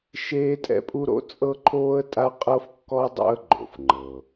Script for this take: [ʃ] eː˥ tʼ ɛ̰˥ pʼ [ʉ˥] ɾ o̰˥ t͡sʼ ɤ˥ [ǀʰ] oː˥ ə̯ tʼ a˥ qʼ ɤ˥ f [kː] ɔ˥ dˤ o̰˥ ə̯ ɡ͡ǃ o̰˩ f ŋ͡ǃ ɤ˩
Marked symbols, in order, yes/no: yes, no, no, yes

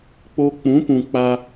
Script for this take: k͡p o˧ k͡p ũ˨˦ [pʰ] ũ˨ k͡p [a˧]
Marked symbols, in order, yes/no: no, yes

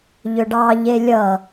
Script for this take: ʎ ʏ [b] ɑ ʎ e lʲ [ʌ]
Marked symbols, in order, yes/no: no, yes

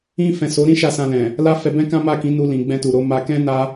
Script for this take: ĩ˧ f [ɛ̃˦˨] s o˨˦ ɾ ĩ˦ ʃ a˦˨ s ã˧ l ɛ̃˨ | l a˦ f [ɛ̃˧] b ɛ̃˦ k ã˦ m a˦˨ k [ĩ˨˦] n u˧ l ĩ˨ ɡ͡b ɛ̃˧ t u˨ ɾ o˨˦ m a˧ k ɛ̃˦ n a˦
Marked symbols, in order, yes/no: no, no, yes

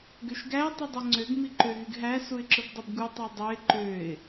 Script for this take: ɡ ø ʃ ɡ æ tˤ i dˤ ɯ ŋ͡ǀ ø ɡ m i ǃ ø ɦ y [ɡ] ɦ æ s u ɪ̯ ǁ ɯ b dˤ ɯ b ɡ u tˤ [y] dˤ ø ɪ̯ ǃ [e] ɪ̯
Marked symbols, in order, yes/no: yes, yes, no

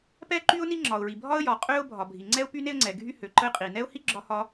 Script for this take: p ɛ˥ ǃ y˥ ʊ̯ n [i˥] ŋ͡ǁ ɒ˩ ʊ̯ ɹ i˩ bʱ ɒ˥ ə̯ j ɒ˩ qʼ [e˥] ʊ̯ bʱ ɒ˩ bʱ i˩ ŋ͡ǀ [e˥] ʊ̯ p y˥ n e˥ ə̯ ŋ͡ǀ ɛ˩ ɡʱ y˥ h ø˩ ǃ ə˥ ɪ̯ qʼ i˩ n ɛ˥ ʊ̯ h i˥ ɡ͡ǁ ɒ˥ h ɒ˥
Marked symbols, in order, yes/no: yes, no, no

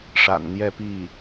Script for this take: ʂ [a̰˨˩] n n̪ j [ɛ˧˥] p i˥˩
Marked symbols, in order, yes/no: yes, no

